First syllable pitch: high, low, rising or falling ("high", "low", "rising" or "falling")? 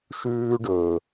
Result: high